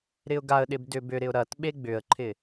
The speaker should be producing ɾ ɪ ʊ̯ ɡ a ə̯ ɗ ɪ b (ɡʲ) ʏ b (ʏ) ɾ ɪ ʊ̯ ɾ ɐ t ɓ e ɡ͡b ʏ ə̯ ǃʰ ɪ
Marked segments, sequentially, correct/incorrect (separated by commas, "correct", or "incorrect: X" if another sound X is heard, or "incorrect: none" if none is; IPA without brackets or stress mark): incorrect: d, correct